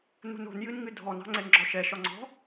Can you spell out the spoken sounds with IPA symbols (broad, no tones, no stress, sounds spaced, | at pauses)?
n ṳ n o̤ n j ɨ n ŋ ɨ dʱ ɔ n ɑ̤ ŋ͡ǀ ɛ n ɡ͡ǁ ɔ ʃ ɛ ʃ ɒ ŋ͡ǀ ɔ̤